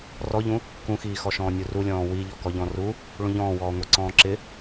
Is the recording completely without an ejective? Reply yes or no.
yes